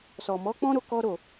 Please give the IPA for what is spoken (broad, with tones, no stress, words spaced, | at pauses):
sɔ˨mɔ˨˦k͡pɔ̃˦ ɾo˦kɔ˦ ɾo˦˨